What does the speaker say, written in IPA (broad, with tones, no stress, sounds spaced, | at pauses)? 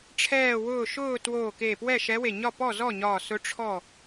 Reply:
ʈ͡ʂʰ ɛː˧˩ w ʊː˧˩ ʃ ʊː˥˨ t w oː˧˩ k e˧˩ p w ɛ˥˨ ʃ ɛ˧˥ w e˧˩ ɲ ɒ˥˨ p ɔ˥˨ z ɔ˥˨ ɲ ɒː˧˩ s ʊ˧˥ ʈ͡ʂʰ ɔ˥˨